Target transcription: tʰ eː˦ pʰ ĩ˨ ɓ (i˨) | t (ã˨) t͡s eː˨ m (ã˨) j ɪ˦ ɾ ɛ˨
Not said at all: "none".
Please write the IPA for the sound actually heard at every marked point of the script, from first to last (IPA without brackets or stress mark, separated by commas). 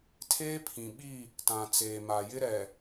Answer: i˦˨, ã˨, a˨